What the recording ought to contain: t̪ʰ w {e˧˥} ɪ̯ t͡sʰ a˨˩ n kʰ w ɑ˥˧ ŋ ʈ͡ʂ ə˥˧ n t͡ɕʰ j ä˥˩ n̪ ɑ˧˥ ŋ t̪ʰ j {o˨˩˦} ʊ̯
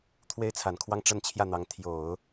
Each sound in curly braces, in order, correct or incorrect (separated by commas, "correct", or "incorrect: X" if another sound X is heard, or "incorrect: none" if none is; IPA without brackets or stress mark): incorrect: e˥, correct